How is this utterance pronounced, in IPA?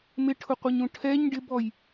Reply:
m ɪ ʈʰ ʊ qʷ i ɲ ũ ʈʰ ɛ ɲ ɖ ɪ b ɔ j

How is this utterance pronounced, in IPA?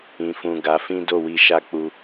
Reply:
ĩ˨ f ũ˨ ɡ a˨˦ f ĩ˦ d o˦˨ w i˧ ʃ a˦ k͡p u˧

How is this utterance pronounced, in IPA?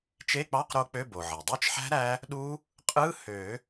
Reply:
t͡ʃ e˧˥˧ k͡p ɑ˧˥˧ q ɾ o˦˥ k͡p ø˧˥˧ b o˩ ʕ e˩ dˤ ø˦˥ t͡ʃ ħ æ̤˦˥ ɾ æ˦˥ | ɗ u˦˥ | qʼ ɯ˧˥˧ h ø˨˩˦

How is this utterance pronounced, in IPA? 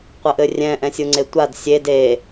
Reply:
qʷ ə ʔ ɘ rʲ ɛ̃ ʔ ɛ̃ sʲ u ŋ͡ǀ e tʷ a d sʲ e d e

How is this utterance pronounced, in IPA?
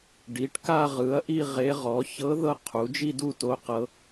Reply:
ɖ i˩˥ ʈ k a˥˧ ʁ ɯ˩˥ ɐ̯ ʔ i˥˧ ʁ e˧˥ ʁ ɔ˩˥ ç ɤ˧˥ ð ɤ˥˧ qʰ u˩˥ d͡ʒ i˥˧ d u˥˧ t o˧˥ q ɤ˧˥

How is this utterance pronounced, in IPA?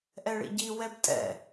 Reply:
ʔ ɛ ɭ ḭ ɟ i w ɛ b tʼ ɛ̰

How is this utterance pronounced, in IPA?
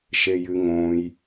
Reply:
ʃ e j ɨ ŋ õ j

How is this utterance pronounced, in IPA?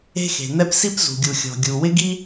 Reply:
e̤˥ x e̤˩ n̪ ɛ˥ p s i˥ p z ṳ˩ ɡʲ u˩ xʲ ɔ̤˩ ɡʲ u˩ w ɪ˥ ɡ i˥

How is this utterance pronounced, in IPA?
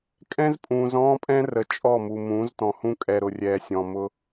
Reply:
kʼ ɛ̃˦ z pʼ ũː˨ z ɔ̃ː˦ pʼ ɛ̃˦ r ə˨ t͡ʃʼ ɔ˦˨ m u˨ m ũː˨˦ z t ɔ̃˨ h ũ˦ kʼ ɛ˨ ɾ ʊ˨ rʲ ɛː˨ sʲ ɔ̃˨ m ʊ˦

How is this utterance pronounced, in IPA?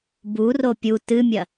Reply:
b u r o pʲ u t ɨ mʲ ɐ

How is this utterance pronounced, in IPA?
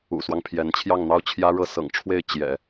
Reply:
ṵ˨˩ s w ɑ˦ ŋ pʰ j ɛ˧˥ n t͡ɕʰ j ɑ˥˩ ŋ n̪ ɑ˥ ʊ̯ t͡ɕʰ j ä˥ ɻ ɤ˥˩ s ɤ̰˨˩ ŋ ʈ͡ʂʰ w e˥˩ ɪ̯ t͡ɕ j ɛ̰˨˩˦

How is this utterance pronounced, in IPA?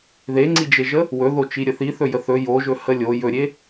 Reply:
ð e ŋ͡ǀ i d͡ʒ e ʒ ə | w ɵ ð o t͡ʃ i ɾʲ ə θ i θ ɵ j ə θ ɵ j o ʒ ɵ h ə lʲ o j ɵ ɾʲ e

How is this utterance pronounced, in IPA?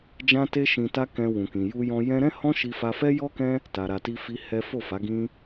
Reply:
d͡ʒ ã˦ t e˦ ʃ ĩ˧ t a˦ k ɛ̃˧ w ũ˨ k ĩ˨ j u˧ j ɔ̃˧ j ɛ̃˦ ɾ ɛ̃˦ h ɔ̃˦ ʃ i˧ f a˧ f ɛ˦ j ɔ˦ k ɛ̃˦ | t a˨ ɾ a˨ t i˧ f i˧ h ɛ˦ f o˦˨ f a˨˦ ɡ ĩ˦

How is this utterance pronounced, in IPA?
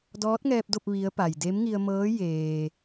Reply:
d ɔː˧˥ t̚ ŋ ɛː˧ p̚ d o˥˨ p̚ ʋ i˧˥ ə̯ p a˩ j d e˧˥ m ŋ i˧ ə̯ m ɤː˧˥ j eː˩

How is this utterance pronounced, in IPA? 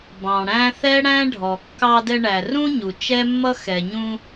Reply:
b ɑ̃˩ ɽ æ̃˥ θ ɛ˥ ɽ æ̃˥ ɖʱ ɔ˩ kː ɑ˧ d ɛ˧ ɳ æ˩ r ũ˥ ɲ u˩ t͡ʃ ɛ˥ mː ʌ˥ x ɛ˩ ɲ ũ˧

